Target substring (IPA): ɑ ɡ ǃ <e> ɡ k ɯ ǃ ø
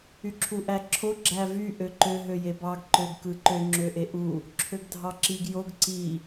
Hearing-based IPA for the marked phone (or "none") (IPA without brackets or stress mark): ø